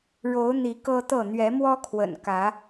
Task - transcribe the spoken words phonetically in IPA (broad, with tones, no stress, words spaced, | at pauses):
ɻo˨˦ʊ̯n̪i˨˦ kɤ˦t̪ɤ˥˨ n̪ɥɛ˨˦mwɔ˦kʰwə̰˨˩n kä˨˦